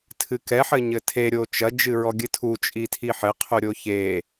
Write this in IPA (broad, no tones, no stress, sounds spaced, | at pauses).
tʰ ɨ k ɛ ħ ɘ ɲ ɘ tʰ e ɾʲ o t͡ʃ ɐ d͡ʒ ɨ ɹ ɔ ɡʲ ɨ tʰ u t͡ʃʼ i tʰ i ħ ɘ qʰ u ɾʲ o ç e